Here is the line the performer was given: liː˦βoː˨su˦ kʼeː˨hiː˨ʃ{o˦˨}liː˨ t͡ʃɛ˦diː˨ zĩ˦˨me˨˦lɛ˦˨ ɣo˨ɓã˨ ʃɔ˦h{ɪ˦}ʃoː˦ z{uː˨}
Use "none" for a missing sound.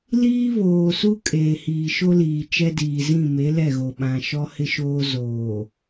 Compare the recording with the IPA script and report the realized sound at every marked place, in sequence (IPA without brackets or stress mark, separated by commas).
o˦, ɪ˦, oː˨